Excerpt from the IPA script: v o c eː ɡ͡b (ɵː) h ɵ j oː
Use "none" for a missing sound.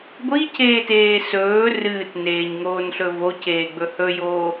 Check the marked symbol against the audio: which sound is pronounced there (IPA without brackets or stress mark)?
ɵ